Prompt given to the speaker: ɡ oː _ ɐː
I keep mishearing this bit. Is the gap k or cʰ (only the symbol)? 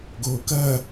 k